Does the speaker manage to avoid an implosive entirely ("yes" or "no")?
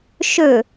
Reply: yes